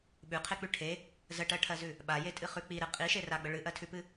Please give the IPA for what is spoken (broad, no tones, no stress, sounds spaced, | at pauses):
ɓ ʉ qʰ e k͡p ʉ ʈʰ e | z ə ʈ ɜ ʈʰ ɜ z ʉ | ɓ a j e tʼ ɨ χ ʉ k͡p i ɾ ɨ qʼ i ʃ e r a ɡ͡b ə ɭ ɨ ʔ ɜ tʰ ʉ p ɨ